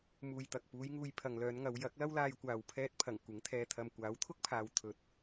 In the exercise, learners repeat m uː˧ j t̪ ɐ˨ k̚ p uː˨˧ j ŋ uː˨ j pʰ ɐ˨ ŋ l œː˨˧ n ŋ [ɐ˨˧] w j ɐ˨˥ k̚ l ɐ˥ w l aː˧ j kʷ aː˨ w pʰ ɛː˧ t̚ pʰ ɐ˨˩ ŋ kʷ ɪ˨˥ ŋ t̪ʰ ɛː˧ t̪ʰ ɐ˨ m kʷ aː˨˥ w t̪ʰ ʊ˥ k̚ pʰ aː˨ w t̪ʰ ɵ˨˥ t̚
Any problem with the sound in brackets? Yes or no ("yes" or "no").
no